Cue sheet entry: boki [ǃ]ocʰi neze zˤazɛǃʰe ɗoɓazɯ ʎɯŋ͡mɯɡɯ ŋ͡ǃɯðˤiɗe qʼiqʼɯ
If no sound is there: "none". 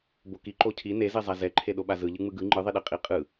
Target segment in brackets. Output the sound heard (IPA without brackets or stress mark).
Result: ǃ